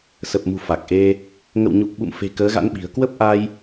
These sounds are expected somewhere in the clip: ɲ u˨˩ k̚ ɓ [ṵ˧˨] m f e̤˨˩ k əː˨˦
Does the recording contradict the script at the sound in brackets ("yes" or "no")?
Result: no